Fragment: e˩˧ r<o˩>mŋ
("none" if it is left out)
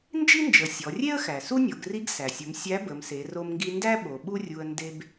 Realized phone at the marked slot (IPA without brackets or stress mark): o˧